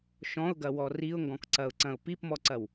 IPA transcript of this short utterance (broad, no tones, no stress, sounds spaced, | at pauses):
ʃ ɔ̃ ʊ̯ ɡ ɐ w ɔ r i ʊ̯ ŋ ɡ ɔ̃ k ǀ ɐ ʊ̯ ǀ ɐ̃ ʊ̯ p i p m ɔ ǀ ɐ w